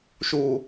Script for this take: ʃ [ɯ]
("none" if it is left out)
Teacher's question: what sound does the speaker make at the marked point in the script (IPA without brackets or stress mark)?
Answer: u